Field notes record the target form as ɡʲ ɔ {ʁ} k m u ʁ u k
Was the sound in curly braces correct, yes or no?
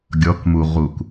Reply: no